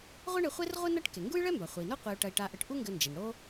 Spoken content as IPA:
ʁʷ ɛ˥ ɳ e˧ χʷ e˥ r ʁʷ ɨ˥ n ɐ˥ ʈ k e˩ ŋ ɡ u˥ j ɭ ɛ˥ m b a˩ χʷ ɘ˩ i̯ n o˥ qʷ e˧ u̯ ʈ ɐ˧ i̯ ʈ a˧ ʔ ɘ˧ ʈ ʔ u˥ ŋ ɡ ɘ˧ n d͡ʒ e˩ n ɽ o˥

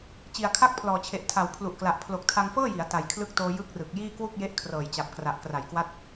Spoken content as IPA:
t͡ɕ i˨˩ a̯ kʰ a˥˩ k̚ pʰ l ɔː˨˩ t͡ɕʰ e˨˩ ʔ tʰ a˨˩ w pʰ l u˨˩ ʔ k l a˨˩ ʔ pʰ l o˨˩ k̚ tʰ a˧ ŋ f ɤː˥˩ j i˩˦ a̯ t a˨˩ j kʰ l ɯ˦˥ k̚ t oː˧ j ɯ˦˥ k̚ r ɯ˨˩ k̚ j iː˥˩ k w u˥˩ k̚ j e˦˥ ʔ kʰ r ɤː˨˩ j t͡ɕ a˨˩ p̚ k r a˨˩ ʔ k r a˩˦ j k w a˦˥ t̚

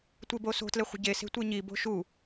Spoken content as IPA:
tʷ e b o s o̤ t l e χʷ ə̤ ɟ e s e̤ tʷ e ɲ i b o̤ ʃ u

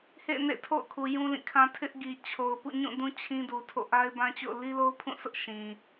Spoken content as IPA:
h ḛ˦˨ n ḛ˦˨ tʰ o̰˦˨ ʊ̯ kʰ u˨ j ũ˦ l ĩ˦˨ kʰ ã˦ tʰ ɪ˦ ʔ ɡ i˨ t͡ɕʰ o˨ ʊ̯ p ṵ˦˨ ɲ ũ˦˨ d ũ˦ t͡ɕʰ ĩ˦ d u˨ tʰ o̰˦˨ ʔ a˦ ɪ̯ b ã˦ t͡ɕ o̰˦˨ ʊ̯ l i˦ l o˦ ʊ̯ pʰ ũ˦˨ sʰ ʊ˦ ʔ ʃ ĩ˨

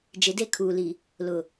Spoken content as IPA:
d͡ʒ ɪ˨˦ d e˦˨ kʰ uː˨ l i˨ | l ʊ˨

